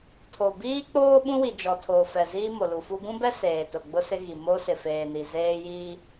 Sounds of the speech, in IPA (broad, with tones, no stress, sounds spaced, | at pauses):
tʰ o˨ b iː˦ k͡p oː˦ ɓ ũ˦ w i˨ d͡ʒ ɔ˨ tʰ oː˨ f ɛ˨ z iː˦ m o˨ l u˨ f u˦ ɡ ũ˦ b ɛ˦ s eː˨ t ʊ˨ ɡ͡b ʊ˦ s ɪ˦ ɣ i˨ m o˦ s ɪ˨ f eː˨ n i˨ z eː˦ j iː˦